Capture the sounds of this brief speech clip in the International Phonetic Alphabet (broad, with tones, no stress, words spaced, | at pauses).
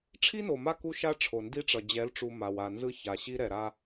ʈ͡ʂʰi˦no˨ma˦ ku˦ʃa˦ʈ͡ʂʰo˨ ndi˦ʈ͡ʂʌ˨ d͡ʑɛ˨˦lʈ͡ʂu˨ ma˨w a˨nzɯ˦ ça˨ɕi˦ɾɛ˨ɾa˦